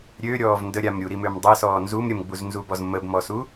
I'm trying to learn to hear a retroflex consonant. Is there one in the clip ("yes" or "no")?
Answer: no